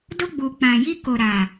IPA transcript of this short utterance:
do˧ɡ͡bu˨ k͡pã˨ji˧ ko˨ɾa˨

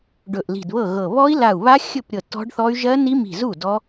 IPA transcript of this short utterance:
ɖɵ˧˩ʔli̤˧˩dβɤ˥˩ɣɤ˧˩ βɔ˦˥i̯la˧˩u̯βa˦˥ xʲɵ˥˩pɾʲɤ˧˩ tɔ̤˦˥ɖθɔ˦˥y̯ ʒɜ˦˥ni˦˥mi̤˧˩zu˥˩ dɔ˦˥

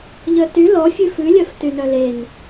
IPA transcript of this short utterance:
ʎœty lɔ fʲʉfʉlʲœf tynœlen

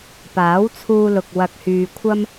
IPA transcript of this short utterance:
paː˨˥wt͡sʰuː˧lʊ˨k̚ wɐ˧k̚hyː˧kʷʰɐ˥m

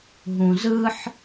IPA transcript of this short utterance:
ɦũzɯħ

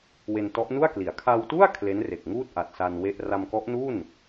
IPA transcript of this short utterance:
we˧ntɔ˦˥ʔnu˥˩a̯kli˩˦a̯ kʰa˧wtu˥˩a̯ kʰle˦˥nre˨˩k̚ŋuː˥˩t̚ ʔa˨˩t̚sa˧n we˥˩ʔ ra˧mkɔ˦˥ʔnu˥˩n

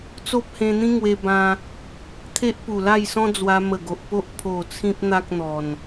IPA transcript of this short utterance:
t͡so˦p̚hẽ˧n̪ĩ˦ ŋwe˧bã˧ | t̪ʰe˦ʔpu˨˩la˥˧jsɔ̃˦ d͡zwa˧mə˨˩ɡo˨ʔpo˦ʔ pʰo˨˩ t͡sʰĩ˦p̚ n̪a˦k̚n̪ɔ˨˩n

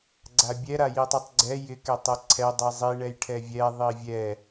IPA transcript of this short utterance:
ɡ͡ǀabʲɛɾa jitˤitˤɡ͡ǀɛ jɪkɛ tˤɛǀʰɛ dˤizˤi ɳɛjʈʰɛvʲɛ ðˤivʲɛ

